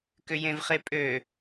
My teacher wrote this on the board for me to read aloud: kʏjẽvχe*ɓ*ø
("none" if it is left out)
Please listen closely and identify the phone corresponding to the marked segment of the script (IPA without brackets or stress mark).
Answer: pʼ